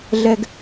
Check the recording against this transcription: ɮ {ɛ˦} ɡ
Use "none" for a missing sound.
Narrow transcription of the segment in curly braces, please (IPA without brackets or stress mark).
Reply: ɛ˦